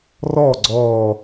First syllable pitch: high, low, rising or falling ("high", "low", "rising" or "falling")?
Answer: falling